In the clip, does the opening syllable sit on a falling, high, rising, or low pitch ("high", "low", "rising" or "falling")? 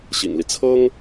low